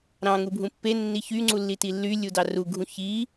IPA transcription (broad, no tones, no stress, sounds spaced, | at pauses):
ɾ ɑ̃ ŋ u bʱ ũ pː e nː i ç y ŋ͡ǀ u lː i t i lː y lʲ u d ɑ r u ɡʱ ũ ç i